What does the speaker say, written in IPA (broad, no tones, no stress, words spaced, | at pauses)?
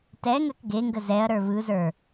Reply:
tɛŋɜk ɡeŋɡə zɛɐ̯ɾə˞ βɯzə˞